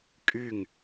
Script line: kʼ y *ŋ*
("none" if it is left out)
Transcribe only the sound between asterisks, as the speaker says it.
ŋ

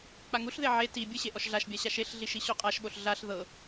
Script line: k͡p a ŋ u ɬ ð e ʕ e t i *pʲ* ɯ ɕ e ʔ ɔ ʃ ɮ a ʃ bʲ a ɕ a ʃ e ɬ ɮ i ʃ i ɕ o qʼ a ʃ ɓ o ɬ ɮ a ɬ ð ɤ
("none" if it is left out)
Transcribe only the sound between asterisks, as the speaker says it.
bʲ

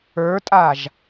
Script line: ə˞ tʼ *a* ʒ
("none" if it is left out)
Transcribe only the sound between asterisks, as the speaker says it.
a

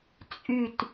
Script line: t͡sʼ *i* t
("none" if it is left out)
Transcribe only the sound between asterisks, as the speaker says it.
y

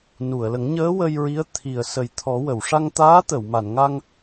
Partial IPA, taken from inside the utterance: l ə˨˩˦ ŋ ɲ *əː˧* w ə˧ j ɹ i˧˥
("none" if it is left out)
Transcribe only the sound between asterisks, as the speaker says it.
əː˧˥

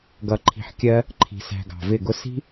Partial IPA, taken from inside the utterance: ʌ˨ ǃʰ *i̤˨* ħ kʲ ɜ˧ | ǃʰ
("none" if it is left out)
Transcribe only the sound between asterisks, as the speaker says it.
i̤˨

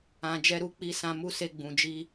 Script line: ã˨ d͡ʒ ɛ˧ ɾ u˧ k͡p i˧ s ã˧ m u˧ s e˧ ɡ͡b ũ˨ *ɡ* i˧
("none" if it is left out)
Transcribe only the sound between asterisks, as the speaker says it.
d͡ʒ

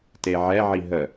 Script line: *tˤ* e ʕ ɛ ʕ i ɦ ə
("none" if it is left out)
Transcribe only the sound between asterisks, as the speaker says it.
t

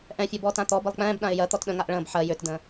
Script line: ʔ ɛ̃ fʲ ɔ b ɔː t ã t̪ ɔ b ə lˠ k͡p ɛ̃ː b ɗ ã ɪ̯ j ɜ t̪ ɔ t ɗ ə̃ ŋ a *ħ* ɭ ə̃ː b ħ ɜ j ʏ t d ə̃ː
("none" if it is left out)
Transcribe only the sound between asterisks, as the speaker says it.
ʔ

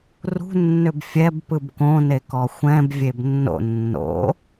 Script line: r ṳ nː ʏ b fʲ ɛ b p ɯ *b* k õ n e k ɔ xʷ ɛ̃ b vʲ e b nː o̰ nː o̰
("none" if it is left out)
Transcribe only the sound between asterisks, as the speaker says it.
b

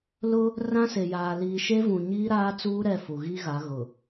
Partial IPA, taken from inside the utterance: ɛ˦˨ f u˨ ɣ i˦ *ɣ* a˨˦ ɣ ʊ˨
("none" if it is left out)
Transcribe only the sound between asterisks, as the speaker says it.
ɣ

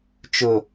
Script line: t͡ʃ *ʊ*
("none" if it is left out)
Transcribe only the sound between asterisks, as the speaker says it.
ʊ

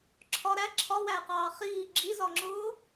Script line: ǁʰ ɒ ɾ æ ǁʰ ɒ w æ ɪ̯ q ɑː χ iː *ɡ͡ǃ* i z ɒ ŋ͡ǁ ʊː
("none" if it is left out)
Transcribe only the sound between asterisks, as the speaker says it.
ɡ͡ǁ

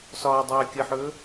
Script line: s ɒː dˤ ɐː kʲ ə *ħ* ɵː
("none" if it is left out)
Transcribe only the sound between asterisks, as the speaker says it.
ħ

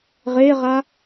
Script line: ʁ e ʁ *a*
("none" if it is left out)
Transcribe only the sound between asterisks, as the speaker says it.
a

